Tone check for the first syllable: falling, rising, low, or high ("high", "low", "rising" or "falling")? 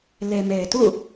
low